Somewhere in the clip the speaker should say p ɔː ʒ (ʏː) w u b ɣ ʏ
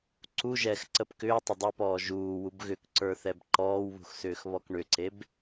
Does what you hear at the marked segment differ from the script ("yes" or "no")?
yes